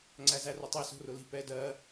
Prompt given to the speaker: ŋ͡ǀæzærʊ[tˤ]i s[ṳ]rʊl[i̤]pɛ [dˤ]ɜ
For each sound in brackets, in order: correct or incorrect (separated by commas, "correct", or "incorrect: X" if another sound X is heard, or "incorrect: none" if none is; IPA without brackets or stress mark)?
correct, incorrect: o̤, correct, incorrect: d